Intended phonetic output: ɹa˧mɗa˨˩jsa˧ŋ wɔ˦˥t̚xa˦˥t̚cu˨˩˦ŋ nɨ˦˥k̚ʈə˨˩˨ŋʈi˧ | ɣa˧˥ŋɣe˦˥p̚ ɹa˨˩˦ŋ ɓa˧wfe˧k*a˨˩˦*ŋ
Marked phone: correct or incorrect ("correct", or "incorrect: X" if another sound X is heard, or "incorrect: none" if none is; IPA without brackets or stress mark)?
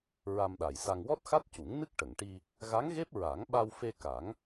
correct